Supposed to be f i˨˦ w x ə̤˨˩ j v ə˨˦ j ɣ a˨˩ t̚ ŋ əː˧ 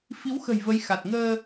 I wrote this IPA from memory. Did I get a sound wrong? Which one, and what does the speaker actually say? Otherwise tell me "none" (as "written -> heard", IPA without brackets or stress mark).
ɣ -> x